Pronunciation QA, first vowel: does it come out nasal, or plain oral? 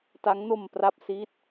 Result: oral